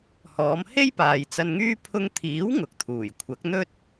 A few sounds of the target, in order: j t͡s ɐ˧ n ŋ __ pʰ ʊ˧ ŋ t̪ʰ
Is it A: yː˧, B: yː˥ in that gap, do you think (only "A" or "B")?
B